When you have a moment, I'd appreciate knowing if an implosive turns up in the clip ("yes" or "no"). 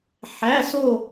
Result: no